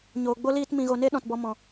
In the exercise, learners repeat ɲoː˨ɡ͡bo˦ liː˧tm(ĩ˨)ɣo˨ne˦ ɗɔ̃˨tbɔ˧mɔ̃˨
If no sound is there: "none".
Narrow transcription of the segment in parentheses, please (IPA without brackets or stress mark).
ĩ˨